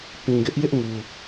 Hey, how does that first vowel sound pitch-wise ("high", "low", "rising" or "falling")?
low